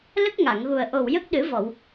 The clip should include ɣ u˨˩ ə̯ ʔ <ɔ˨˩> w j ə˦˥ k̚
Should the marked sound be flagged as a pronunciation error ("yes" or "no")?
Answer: yes